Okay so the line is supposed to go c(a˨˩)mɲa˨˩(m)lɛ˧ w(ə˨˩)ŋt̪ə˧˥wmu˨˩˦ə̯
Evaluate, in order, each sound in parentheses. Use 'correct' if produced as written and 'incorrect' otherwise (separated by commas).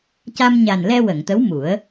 incorrect, incorrect, incorrect